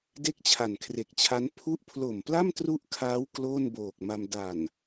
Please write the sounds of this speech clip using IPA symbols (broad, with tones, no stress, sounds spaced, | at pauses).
d e˥˩ k̚ t͡ɕʰ a˨˩ n kʰ r e˨˩ k̚ t͡ɕʰ a˦˥ n pʰ u˦˥ ʔ pʰ l o˨˩ m p l a˥˩ m t r u˥˩ ʔ kʰ aː˦˥ w k l oː˥˩ n b oː˨˩ k̚ m a˧ m d a˨˩ n